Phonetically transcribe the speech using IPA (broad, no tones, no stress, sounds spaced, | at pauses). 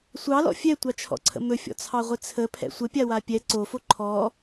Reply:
sʷ ɑ l ɔ̰ fʲ ɛ tʷ ɑ t͡ʃʰ ɔ̰ ǀʰ ə̰ m ɵ fʲ ɔ̰ t͡sʰ ɑ ʁʷ ɪ t͡sʰ ə pʰ ɛ̰ sʷ ə pʲ a w a pʲ ɛ ǀ o f o ǃʰ ɔ